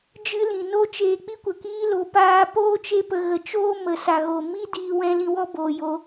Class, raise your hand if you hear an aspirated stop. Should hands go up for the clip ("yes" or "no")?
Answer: no